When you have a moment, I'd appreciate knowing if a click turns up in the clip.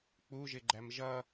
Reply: yes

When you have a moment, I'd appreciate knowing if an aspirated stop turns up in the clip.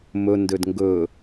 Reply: no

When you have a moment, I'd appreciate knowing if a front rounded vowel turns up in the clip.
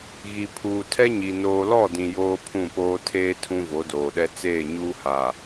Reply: no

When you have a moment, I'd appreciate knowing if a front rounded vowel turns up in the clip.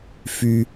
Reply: yes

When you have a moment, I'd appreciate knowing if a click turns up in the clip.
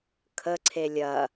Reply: yes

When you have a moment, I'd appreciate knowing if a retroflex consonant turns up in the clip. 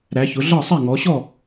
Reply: no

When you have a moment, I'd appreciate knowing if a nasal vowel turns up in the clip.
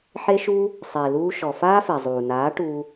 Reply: no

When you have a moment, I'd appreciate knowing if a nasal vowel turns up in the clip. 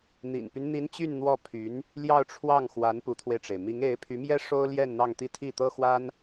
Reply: no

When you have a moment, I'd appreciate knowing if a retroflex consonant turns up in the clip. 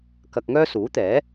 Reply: no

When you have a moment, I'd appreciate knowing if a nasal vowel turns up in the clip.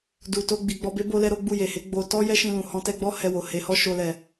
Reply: yes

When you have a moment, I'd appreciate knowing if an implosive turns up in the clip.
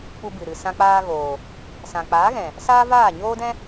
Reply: no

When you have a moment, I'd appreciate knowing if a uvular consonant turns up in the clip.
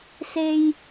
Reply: no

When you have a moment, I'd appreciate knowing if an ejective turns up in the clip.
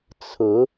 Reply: no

